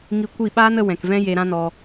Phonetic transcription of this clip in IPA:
ŋ i˧ kʷ i˦˨ ɓ aː˦ n ə˧ w ɛ̃˨ k v ɛ̃˦ j e˧ ɾ ã˦ n ɔ˧

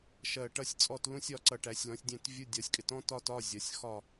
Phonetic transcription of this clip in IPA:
ʃ ɜ˧˩ ʈ ʌ˧˥˧ sʲ t͡sʼ ɔ˥˨ t l ũ˧˥˧ sʲ ɒ˥˨ ǀ ʌ˧˩ ʈ æ˨˩˦ sʲ l ɔ̃˩˥ sʲ dʲ æ̃˥˨ t vʲ u˧˥˧ dʲ ɒ˨˩˦ sʲ kʼ ɪ˩˥ t ɔ̃˥ t ɒ˥ t ɒ˧˥˧ zʲ ɒ˩˥ sʲ x ɒ˥˨

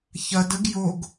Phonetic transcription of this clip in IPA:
ç ɐ d ə ɡ j o ɡ

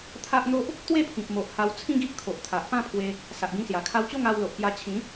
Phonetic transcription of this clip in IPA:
t̪ʰ a˦ ʔ n̪ o˦ ʔ | t̪ w e˥˧ pʰ ĩ˨ p̚ m o˨ ʔ h a˧ w t͡sʰ ĩ˦ ɡ i˦ ʔ kʰ o˨ ʔ t̪ʰ a˨ ʔ p ã˥˧ pʰ w e˧ | s a˨ ʔ ɡ ĩ˧ s j a˨˩ kʰ a˧ w t͡ɕ o˥˧ ŋ a˧ w l o˨ ʔ p j a˧ t͡ɕʰ ĩ˨˦

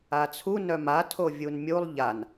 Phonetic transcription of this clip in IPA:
a t͡sʰ u n œ m a tʰ o vʲ u n mʲ u lˠ ʎ a n

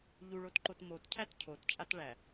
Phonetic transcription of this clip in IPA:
ʎ u ɭ o t ǃ o t m o t cʰ æ t cʰ o t t͡ʃʼ a t ɭ æ

